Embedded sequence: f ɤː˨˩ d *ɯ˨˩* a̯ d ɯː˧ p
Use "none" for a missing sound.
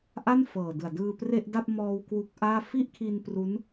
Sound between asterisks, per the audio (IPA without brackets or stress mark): ɯ˨˩